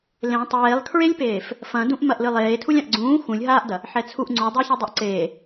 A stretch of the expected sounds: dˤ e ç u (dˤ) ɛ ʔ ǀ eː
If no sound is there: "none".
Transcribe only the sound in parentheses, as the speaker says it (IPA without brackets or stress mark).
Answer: dˤ